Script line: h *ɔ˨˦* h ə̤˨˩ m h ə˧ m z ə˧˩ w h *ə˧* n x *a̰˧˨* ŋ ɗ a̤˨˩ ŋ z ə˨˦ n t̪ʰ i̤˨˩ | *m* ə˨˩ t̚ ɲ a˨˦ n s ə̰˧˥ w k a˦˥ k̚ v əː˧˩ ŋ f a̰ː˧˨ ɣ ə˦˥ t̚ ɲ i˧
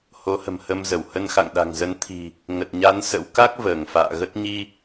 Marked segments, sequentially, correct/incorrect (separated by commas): incorrect, correct, correct, incorrect